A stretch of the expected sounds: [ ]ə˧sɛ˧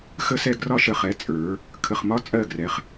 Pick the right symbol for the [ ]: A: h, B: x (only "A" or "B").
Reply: B